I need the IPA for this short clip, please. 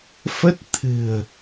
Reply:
f ə˦˥ t̚ t̪ʰ ɨ̤˨˩ ə̯

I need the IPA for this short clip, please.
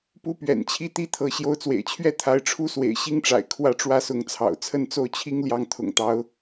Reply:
p u˥ p ɥ ɛ̰˨˩ n t͡ɕʰ i˥ t̪ i˥ t̪ʰ ɤ˧˥ ɕ j o˧˥ ʊ̯ t͡s w ḛ˨˩ ɪ̯ t͡ɕʰ ɥ ɛ˥ t̪ʰ a˧˥ ɪ̯ ʈ͡ʂʰ u˥ s w ḛ˨˩ ɪ̯ ɕ i˥ ŋ ʈ͡ʂ a̰˨˩ ɪ̯ kʰ w ä˥˩ ʈ͡ʂ w ä˥ s ʊ˧˥ ŋ t͡sʰ ɑ̰˨˩ ʊ̯ t͡sʰ ə˥˧ n t͡s o˥˩ ʊ̯ t͡ɕʰ i˥ ŋ l j ɑ˥˩ ŋ t̪ʰ ʊ̰˨˩ ŋ t̪ ɑ˧˥ ʊ̯

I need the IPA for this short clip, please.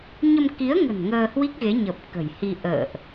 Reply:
ɲ ə˧ m k i˨˦ ə̯ ŋ ə̤˨˩ n ŋ əː˧ h w i˦˥ k̚ ɣ e˨˦ ɲ ə˨˩ p̚ k ə̤˨˩ j h i˧ ʔ ə̰ː˧˨ ʔ

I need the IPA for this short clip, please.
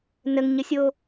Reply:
n ə ŋ ɲ ə sʲ o

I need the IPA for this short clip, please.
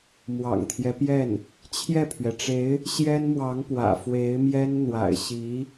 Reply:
m w ɑ̰˨˩ ŋ t̪ʰ j ɛ˦ p j ɛ˥˩ n | t͡ɕʰ j ɛ˥˩ pʰ ɥ ɛ˩ ʈ͡ʂ e˧˥ ɪ̯ | ɕ j ɛ˥ n m w ɑ˧˥ ŋ p w ä̰˨˩ f w e˧˥ ɪ̯ m j ɛ˥ n n̪ w a̰˨˩ ɪ̯ ɕ i˧˥

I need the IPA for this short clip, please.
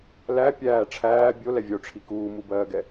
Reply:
l æ pʲ æː ʈ͡ʂʰ æː bʲ o l ɛ vʲ o ʈ͡ʂʰ i k uː m u b ɜː ɡ ɛ

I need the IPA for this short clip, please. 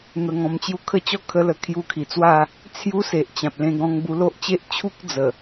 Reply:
n̪ ə˧ ŋ ɔ̃˧ m t͡ɕ j u˧ kʰ ə˦ t͡ɕ ɔ˦ kʰ ə˦ l ə˧ kʰ j u˧ kʰ i˨˩ t͡s w a˥˧ | t͡sʰ j u˦ s e˨ ʔ t͡ɕ ã˨ p̚ l ẽ˧ ɡ ɔ̃˧ ŋ b u˧ l o˦ ʔ t͡ɕ e˦ ʔ t͡ɕʰ u˦ k̚ d͡z ə˨˩

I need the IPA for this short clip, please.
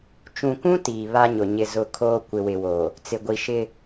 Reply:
t͡ʃ ũ˨ kʷ ũ˦ t iː˨ β a˦ ɲ ʊ˨ ɲ ɪ˦˨ z ʊ˦˨ kʰ oː˦ kʷ ɪ˨ w ɪ˨ w o˨ | t͡s ɪ˨ ɡʷ i˨ ʃ ɪ˦

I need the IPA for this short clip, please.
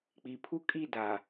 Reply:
k͡p i˨ pʰ u˦ kʼ i˦˨ d a˨

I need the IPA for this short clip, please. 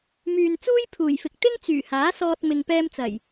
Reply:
m yː˨ n t͡s uː˥ j pʰ uː˨˩ j f ɪ˨ k̚ t̪ ɪ˥ ŋ t͡s yː˨˩ h aː˨˥ s ɔː˧ t̚ m ɪ˨ ŋ p ɛː˧ m t͡s ɐ˨˩ j

